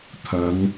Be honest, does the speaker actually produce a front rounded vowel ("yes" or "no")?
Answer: no